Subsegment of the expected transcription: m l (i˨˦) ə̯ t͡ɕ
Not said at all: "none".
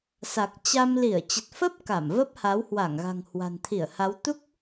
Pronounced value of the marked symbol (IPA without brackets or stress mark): i˧˩